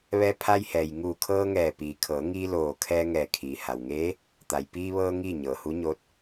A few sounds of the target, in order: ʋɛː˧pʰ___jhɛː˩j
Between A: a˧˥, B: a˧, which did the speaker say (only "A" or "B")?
B